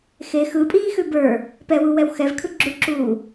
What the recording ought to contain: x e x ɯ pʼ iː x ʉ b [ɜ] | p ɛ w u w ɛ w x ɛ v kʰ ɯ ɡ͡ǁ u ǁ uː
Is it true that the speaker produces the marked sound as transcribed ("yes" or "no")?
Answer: no